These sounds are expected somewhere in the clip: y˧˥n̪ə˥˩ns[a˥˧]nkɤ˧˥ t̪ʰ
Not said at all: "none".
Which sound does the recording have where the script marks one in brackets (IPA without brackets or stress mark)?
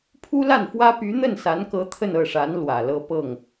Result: a˧˥